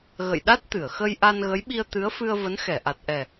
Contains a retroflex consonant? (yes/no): no